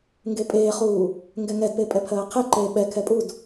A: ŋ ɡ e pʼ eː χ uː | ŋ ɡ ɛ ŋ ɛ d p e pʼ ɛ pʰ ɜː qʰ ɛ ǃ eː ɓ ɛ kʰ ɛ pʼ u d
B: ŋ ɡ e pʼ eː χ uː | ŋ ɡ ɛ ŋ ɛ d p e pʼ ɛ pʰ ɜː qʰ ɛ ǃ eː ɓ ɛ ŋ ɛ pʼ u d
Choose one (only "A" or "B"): A